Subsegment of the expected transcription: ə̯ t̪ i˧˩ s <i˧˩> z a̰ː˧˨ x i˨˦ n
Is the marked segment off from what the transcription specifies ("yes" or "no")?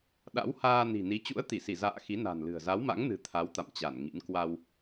no